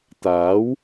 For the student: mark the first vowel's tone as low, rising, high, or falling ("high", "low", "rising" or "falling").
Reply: rising